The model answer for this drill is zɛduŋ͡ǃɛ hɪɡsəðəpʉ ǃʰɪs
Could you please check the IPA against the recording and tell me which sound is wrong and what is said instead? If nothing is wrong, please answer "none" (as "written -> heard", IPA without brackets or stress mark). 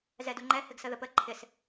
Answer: ʉ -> ə